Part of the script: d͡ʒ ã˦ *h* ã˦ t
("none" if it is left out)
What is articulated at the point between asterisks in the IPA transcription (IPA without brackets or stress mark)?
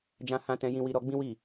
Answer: h